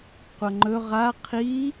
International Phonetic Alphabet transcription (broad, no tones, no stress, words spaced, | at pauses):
qʷɐŋ͡ǃɵ ʁa qʰi